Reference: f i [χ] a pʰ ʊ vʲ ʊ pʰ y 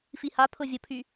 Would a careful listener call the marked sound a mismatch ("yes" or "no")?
yes